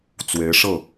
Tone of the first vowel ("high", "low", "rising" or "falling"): rising